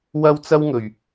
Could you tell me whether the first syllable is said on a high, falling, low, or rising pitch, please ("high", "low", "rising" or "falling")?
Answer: high